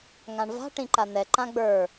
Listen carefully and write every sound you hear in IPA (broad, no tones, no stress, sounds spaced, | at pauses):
ŋ ã ɳ v a̤ ʈ ĩ ǃ a n̪ ɛ ǃ ã ɡ͡b ə˞